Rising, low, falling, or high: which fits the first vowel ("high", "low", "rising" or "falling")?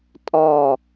low